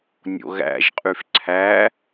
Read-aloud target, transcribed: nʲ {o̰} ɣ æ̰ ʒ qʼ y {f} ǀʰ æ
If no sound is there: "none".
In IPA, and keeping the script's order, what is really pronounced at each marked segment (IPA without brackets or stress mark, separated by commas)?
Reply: o̰, f